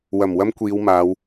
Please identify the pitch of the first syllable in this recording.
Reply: low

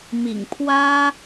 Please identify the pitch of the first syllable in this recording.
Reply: low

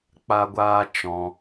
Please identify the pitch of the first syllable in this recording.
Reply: high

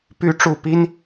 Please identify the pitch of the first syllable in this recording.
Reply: rising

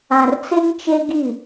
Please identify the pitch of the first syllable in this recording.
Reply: low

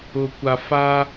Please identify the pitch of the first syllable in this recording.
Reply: low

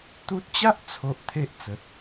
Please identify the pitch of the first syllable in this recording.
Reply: high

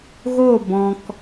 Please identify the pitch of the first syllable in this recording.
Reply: falling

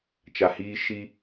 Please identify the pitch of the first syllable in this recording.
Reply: low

